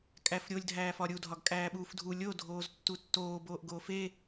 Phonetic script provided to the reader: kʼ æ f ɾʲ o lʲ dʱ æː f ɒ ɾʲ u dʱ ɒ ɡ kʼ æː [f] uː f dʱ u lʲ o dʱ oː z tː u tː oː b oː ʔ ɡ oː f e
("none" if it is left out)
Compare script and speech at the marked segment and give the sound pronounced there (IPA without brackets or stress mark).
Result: ɓ